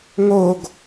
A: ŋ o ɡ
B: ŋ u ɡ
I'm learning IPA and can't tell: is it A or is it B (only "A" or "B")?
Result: A